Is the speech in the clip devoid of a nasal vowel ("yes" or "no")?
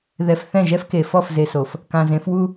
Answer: no